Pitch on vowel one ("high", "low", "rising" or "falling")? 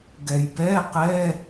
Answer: low